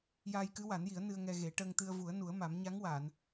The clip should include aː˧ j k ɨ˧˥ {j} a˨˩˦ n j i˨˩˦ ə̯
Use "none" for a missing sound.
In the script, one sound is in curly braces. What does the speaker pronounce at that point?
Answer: w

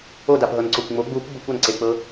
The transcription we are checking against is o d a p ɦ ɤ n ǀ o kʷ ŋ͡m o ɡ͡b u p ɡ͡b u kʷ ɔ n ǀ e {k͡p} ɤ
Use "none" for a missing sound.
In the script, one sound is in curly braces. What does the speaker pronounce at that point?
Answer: k͡p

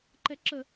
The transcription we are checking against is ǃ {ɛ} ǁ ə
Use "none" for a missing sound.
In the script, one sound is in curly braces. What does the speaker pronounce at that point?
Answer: ɛ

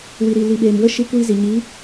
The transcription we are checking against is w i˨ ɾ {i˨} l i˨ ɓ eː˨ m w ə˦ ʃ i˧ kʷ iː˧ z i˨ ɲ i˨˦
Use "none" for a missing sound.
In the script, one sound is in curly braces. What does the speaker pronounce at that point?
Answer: i˨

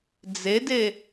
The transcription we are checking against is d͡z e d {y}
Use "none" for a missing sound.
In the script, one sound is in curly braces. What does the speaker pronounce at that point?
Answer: e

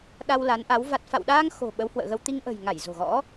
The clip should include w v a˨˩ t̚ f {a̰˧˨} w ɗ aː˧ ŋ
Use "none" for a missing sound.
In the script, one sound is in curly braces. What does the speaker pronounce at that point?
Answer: a̰˧˨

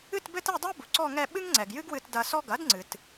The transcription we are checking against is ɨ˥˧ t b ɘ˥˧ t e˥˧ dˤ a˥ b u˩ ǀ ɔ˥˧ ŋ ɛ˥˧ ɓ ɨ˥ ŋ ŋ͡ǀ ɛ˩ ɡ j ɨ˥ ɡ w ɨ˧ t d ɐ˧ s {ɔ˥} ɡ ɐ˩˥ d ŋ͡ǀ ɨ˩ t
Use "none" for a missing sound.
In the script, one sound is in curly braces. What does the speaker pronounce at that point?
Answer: ɔ˥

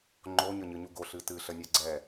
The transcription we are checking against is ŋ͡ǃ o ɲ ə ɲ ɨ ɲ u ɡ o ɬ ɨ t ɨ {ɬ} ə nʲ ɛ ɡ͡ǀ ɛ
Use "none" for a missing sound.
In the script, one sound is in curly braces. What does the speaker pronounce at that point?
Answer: ɬ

